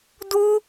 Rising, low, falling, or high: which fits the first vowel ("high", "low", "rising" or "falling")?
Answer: high